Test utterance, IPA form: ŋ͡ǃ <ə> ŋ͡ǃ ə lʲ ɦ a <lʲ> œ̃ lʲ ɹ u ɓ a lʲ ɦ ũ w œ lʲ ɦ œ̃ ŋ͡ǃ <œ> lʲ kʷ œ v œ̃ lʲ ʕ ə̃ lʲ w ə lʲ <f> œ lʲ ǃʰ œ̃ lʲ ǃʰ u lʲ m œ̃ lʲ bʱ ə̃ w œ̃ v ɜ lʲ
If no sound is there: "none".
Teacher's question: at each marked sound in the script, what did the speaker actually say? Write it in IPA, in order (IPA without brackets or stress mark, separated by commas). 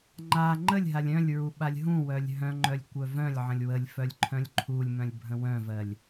a, lʲ, œ, f